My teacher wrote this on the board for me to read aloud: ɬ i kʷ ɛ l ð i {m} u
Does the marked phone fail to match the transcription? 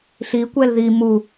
no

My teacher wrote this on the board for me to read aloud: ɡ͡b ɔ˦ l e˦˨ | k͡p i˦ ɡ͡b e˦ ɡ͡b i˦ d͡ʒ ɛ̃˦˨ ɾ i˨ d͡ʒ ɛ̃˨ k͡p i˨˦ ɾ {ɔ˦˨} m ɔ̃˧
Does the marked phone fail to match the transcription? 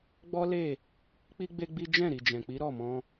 no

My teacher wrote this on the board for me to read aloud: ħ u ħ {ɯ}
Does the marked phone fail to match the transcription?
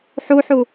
yes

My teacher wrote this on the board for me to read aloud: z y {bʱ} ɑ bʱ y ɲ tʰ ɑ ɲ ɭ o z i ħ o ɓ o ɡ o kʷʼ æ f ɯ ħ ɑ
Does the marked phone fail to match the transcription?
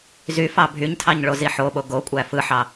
yes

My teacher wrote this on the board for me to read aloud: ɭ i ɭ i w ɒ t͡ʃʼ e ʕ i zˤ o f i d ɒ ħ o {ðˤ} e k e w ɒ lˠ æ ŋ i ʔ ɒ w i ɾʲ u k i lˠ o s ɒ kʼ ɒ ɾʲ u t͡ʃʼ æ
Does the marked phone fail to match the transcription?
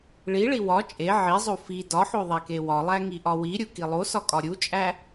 no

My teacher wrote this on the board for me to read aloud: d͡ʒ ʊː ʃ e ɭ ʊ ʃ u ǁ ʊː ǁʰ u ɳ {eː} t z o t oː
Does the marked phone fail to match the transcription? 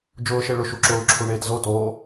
no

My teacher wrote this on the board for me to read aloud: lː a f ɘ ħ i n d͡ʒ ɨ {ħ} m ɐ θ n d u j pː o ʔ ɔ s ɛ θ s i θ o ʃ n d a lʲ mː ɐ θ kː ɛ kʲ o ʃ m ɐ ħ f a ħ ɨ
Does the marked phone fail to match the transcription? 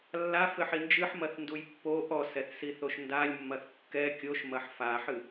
no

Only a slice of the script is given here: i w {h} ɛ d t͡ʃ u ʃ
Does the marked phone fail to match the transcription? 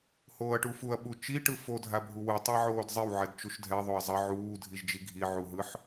yes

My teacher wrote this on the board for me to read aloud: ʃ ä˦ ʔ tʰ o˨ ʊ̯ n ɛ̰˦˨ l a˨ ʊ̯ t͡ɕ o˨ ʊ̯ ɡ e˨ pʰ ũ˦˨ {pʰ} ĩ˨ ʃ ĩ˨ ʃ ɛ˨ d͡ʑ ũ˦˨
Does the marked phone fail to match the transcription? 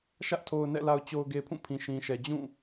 no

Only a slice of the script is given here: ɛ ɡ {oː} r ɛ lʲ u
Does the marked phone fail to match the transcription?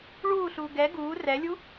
yes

